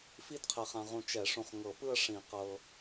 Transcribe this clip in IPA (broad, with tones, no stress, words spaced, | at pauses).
fi˥˧dqʰɛ˨χã˨ʁũ˨ t͡ʃɛ˨˩˦ʂũ˨χŋɤ˨˩˦pɯ˥˧ə̯ ʂĩ˨˩˦qɤ˨